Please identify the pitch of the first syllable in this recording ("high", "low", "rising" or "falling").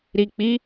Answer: low